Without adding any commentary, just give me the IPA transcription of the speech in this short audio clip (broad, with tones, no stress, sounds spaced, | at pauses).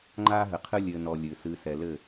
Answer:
ŋ͡ǃ aː˦ ɦ ɘ˨ qʰ ɨ˦ lʲ ɘː˨ n ɔ˨ lʲ ɨ˨ s ɨː˨ s ɛ˨ l ɘ˦˨